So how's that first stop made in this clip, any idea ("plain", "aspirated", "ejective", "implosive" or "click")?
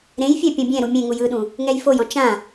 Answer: plain